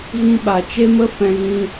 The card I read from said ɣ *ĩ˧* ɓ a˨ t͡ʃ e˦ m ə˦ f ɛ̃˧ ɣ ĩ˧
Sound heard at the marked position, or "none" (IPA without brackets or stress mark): ĩ˧